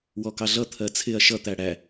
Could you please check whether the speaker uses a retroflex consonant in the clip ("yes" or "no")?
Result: yes